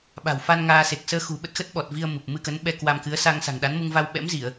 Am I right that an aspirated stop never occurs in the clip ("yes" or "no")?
yes